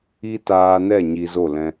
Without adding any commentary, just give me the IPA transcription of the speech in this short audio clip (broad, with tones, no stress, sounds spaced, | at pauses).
i˦ t aː˧ n ɛ˦˨ ɲ i˧ z o˦˨ l ɛ̃˧